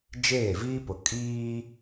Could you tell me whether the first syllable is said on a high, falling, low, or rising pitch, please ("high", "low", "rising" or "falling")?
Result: falling